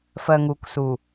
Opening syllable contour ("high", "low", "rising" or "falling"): low